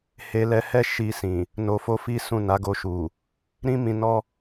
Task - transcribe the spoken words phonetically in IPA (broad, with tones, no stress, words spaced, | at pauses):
he˧lɛ˧hɛ˦ ʃi˧sĩ˨ | no˧fo˦fi˦sũ˦˨ na˨˦ɡo˧ʃu˨ | ɾĩ˦mĩ˧ nɔ˦